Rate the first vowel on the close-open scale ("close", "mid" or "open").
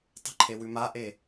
mid